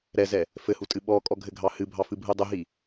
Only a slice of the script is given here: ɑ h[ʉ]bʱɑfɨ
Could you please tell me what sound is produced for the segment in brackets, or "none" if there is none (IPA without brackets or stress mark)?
ɨ